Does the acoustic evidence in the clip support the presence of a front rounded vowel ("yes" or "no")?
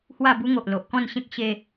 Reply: no